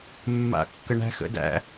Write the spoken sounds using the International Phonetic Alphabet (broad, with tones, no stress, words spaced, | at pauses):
mːa̰˨kːə˨ ɳæ̤˦xə̰˦dæ̰˦